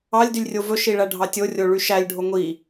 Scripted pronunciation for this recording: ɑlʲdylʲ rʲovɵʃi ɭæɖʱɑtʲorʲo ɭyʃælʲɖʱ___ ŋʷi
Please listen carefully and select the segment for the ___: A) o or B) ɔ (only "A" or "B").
A